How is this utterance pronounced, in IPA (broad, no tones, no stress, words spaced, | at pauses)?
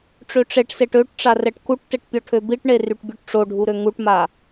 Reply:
ʈ͡ʂøʈ͡ʂeʈseʈ øʈ ʈ͡ʂarɛʈkuʈtɛʈ pʲɔʈʰøbiʈɳe ryʈbʲøʈʈ͡ʂoɖʱu ɾøŋuʈma